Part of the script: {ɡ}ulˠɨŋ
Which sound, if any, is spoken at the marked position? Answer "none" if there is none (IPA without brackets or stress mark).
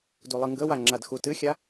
d